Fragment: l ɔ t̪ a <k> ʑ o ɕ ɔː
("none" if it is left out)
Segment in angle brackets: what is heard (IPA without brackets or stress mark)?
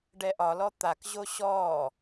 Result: k